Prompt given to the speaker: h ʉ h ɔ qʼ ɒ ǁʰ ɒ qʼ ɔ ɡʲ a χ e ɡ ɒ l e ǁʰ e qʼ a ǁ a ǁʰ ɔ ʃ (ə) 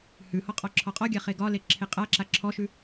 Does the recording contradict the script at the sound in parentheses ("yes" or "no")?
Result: yes